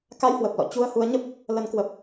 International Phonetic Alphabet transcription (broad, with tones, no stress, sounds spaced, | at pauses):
k a˧ j h w ə˨˩ p̚ l ɔ̰˧˨ t͡ɕ u˧ ə̯ h u˨˦ ə̯ ɲ ə˦˥ p̚ | l ə˨˦ n k w ə˨˩ p̚